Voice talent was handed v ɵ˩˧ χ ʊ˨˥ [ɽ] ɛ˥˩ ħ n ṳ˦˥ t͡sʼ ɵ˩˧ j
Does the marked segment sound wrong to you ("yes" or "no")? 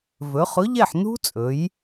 yes